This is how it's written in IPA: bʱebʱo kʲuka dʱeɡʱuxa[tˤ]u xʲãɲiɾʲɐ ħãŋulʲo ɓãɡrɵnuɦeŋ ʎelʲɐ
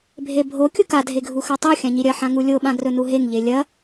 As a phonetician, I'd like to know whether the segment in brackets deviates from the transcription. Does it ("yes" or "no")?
no